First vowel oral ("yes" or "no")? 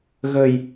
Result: yes